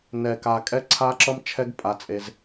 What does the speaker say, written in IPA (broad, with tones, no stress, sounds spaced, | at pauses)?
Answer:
n ɛ˧ k a˧ kʼ ɛ˦ ǀʰ a˦ ǁ ʌ˦ m t͡ʃʰ ɛ˦ ɡ pʼ a˧ t͡sʼ e˧ z